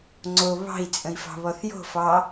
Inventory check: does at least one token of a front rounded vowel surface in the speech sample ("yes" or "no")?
no